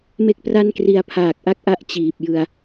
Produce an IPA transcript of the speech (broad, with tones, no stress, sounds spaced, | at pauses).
m e˥˩ k̚ p r a˥˩ n k r i˧ a̯ pʰ aː˨˩ k̚ ʔ a˥˩ k̚ ʔ a˥˩ ʔ t͡ɕ iː˨˩ p̚ j ɯ˧ a̯